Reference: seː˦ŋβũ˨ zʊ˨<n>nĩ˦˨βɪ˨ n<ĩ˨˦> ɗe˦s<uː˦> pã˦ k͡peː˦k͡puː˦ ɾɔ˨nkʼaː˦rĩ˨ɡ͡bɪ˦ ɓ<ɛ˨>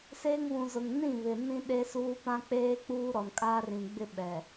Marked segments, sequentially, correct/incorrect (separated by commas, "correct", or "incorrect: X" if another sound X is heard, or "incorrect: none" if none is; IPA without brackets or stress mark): incorrect: ŋ, incorrect: ĩ˦, correct, correct